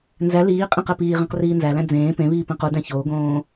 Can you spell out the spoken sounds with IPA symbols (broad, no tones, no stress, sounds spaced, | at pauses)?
n z æ l iː qʼ ĩ q e p iː ʁ ĩ q r iː n z æ l æ̃ d͡z ẽː p ẽ β iː p ẽ q u d æ̃ ç oː ɡ õː